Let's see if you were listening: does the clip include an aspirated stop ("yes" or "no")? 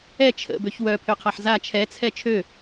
yes